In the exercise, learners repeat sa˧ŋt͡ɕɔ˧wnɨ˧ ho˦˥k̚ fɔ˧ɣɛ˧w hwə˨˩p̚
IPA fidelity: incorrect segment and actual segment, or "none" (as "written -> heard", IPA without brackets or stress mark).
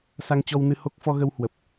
ɛ˧ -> ə˧